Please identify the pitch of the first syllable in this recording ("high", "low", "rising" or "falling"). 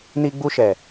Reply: high